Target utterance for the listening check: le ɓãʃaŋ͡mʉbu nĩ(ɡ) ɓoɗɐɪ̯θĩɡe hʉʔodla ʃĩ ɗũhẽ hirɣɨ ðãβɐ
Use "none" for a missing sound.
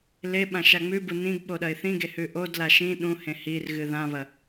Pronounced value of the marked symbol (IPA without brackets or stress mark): ɡ